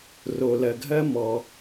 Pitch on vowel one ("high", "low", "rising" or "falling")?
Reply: low